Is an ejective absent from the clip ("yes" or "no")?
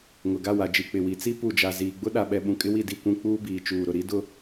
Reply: no